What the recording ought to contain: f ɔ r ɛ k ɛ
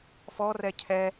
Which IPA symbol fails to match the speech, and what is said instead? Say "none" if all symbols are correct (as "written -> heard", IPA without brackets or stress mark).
k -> cʰ